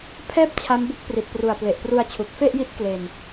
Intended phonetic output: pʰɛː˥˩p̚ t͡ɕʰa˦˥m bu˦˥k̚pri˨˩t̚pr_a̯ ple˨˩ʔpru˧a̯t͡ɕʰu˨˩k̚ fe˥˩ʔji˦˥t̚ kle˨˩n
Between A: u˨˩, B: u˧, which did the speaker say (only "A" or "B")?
A